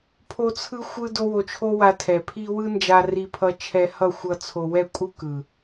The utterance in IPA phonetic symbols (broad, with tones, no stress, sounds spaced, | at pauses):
pʰ o˦ t͡sʰ ɯ˦ xʷ ɯ˦ d o˦ w o˧ t͡ʃʰ o˦ w a˧ tʰ ɛ˨ pʰ i˧ w ɯ˦ n d͡ʒ a˧ r i˧ pʰ ʌ˧ t͡ʃʰ ɛ˧ h ʌ˦˨ xʷ ʌ˦ t͡sʰ o˧ w ɛ˦˨ kʷʼ ɯ˦ k ɯ˨